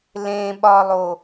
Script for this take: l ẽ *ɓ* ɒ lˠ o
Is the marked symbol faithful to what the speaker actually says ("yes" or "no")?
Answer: yes